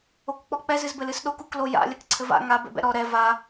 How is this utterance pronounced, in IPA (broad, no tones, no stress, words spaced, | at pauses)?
okk͡pɔk͡pɛz ɨzbɘlɨsɗok ukloja̰ lʲɐkǀʰɘva̰ ŋa bɛ̰bɛ̰ɾɔ ɾɛ va